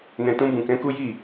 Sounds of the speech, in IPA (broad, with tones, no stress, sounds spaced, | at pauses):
n ɛ̃˨ t ũ˧ b ũ˨ k ɛ̃˨˦ k u˦ j i˦˨